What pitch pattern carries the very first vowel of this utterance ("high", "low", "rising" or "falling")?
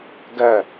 falling